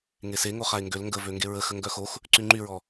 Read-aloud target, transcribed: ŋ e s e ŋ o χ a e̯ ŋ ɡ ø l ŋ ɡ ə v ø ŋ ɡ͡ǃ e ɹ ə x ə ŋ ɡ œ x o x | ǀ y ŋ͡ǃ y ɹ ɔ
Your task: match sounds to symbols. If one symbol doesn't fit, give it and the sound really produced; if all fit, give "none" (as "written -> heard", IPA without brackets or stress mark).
ɡ͡ǃ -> ɡ